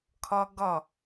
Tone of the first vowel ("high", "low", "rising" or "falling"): high